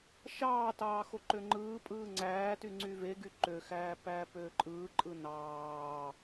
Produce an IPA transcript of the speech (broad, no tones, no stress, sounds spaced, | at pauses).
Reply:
ʃ ɑː t ɑː x o ǃ ø ŋ͡ǃ ɯː pʼ ɯː ŋ͡ǀ æː t y ŋ͡ǀ y v e ɡ y ǃ ø x æː p æː p øː ǃʼ ɯː ǃʼ ɯ n ɑː